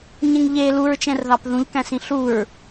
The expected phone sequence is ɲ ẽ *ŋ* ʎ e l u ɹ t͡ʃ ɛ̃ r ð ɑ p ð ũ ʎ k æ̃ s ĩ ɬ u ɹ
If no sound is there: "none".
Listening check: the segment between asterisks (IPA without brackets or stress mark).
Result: ŋ